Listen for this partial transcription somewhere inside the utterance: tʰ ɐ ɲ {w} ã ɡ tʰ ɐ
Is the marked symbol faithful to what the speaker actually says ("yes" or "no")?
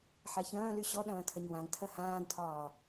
yes